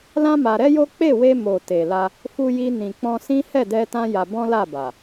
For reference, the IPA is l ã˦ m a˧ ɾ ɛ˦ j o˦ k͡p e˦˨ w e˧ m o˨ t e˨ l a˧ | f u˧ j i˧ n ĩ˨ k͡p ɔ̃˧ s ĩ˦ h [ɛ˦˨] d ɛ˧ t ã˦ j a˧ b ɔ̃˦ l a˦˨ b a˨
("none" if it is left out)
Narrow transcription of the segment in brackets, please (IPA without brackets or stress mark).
ɛ˦˨